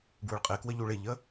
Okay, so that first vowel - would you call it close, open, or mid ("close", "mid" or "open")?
close